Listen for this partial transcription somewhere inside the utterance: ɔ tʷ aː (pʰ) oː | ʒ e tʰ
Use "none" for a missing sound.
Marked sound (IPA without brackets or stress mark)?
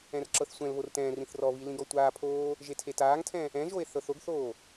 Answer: pʰ